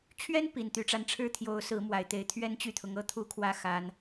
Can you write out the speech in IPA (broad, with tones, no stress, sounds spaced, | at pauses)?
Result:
t͡ɕʰ ɥ ɛ˥ n p i˨˩ n t̪ y˧˥ ʈ͡ʂ a˥˧ n ʈ͡ʂʰ ɻ̩˥˩ t̪ʰ j o˧˥ ʊ̯ s ɹ̩˧˥ m w a˨˩ ɪ̯ t̪ e˧˥ ɪ̯ t̪ʰ ɥ ɛ˥ n t͡ɕ y˥˩ t̪ʰ ʊ˧˥ ŋ ɤ˥ t̪ʰ u˥ kʰ w ä˥˩ x a˥ n